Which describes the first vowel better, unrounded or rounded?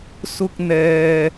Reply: rounded